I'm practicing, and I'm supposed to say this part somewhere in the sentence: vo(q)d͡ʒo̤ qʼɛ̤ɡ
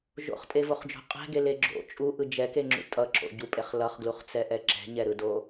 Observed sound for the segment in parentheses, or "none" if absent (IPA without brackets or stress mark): χ